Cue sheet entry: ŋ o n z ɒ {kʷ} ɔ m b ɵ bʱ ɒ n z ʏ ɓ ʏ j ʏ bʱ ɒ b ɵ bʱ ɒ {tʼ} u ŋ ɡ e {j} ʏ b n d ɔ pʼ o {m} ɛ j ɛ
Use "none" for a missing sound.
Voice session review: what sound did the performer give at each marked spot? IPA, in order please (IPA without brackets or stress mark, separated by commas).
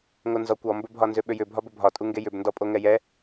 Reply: kʷ, tʼ, j, ŋ